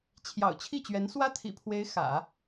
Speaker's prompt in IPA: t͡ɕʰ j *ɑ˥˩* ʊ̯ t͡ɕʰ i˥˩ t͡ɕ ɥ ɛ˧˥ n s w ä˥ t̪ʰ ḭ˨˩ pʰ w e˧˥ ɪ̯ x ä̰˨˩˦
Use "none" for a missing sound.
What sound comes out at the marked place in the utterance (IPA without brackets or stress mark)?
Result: ɑ̰˨˩